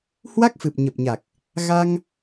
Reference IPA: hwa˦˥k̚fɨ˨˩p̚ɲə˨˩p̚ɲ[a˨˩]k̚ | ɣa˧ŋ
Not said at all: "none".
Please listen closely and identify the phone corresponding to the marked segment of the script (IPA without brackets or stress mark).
a˨˩